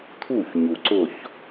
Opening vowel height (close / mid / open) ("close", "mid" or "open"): close